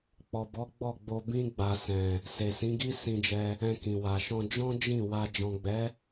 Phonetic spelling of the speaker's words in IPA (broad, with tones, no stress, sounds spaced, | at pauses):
k͡p ɔ˨ b ɔ˨˦ ɡ͡b ɔ˦˨ ɡ͡b o˧ b ĩ˧ ɡ͡b a˨ s ɛ̃˨ | s e˨ s ĩ˨˦ ɡ i˦ s ĩ˧ d͡ʒ ɛ˧ | ɛ̃˧ k ĩ˨ w a˨ ʃ ɔ̃˧ d͡ʒ ɔ̃˦ d͡ʒ ĩ˦˨ w a˧ d͡ʒ ɔ̃˨ ɡ͡b ɛ˨˦